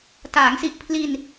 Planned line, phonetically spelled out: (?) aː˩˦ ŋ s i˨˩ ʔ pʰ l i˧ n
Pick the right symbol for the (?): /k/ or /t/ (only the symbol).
t